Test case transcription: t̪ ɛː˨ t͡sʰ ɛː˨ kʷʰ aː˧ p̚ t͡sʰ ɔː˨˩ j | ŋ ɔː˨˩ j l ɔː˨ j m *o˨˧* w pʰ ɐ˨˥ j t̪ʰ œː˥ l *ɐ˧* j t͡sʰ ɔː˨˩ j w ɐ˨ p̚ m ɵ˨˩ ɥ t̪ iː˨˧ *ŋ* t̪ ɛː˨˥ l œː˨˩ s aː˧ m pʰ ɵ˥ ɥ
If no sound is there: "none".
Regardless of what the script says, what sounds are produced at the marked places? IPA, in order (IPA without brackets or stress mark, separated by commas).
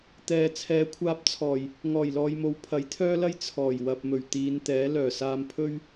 o˨˧, ɐ˥, n